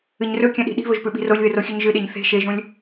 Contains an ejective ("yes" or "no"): no